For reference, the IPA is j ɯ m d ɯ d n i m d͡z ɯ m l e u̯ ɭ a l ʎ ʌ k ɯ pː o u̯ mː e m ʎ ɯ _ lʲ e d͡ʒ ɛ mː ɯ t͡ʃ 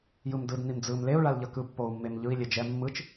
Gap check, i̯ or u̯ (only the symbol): i̯